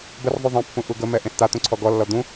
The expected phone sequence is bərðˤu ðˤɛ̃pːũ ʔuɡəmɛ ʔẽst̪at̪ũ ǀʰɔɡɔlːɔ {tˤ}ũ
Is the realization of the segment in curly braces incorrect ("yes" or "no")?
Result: yes